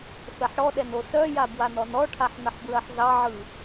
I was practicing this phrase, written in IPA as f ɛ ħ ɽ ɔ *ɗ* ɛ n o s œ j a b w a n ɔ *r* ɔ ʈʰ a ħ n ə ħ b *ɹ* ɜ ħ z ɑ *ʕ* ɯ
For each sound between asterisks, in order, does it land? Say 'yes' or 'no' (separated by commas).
yes, no, yes, yes